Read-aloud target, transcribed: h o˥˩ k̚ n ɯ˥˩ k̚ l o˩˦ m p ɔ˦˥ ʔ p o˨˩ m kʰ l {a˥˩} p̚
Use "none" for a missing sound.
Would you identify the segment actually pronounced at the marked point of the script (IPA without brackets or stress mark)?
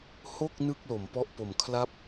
a˥˩